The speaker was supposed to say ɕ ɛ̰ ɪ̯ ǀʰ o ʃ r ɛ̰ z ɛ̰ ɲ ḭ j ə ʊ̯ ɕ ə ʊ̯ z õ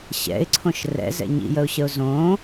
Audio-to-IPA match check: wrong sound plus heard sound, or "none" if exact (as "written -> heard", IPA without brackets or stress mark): o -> õ